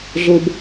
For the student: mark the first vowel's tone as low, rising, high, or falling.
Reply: high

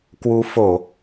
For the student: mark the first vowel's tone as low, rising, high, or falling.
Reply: rising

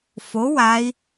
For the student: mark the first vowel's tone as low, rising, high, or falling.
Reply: rising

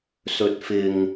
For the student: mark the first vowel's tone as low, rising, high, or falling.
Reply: low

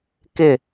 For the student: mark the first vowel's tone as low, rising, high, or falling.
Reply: falling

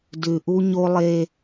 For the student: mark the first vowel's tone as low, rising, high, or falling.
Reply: low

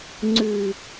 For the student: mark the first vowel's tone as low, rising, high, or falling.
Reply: low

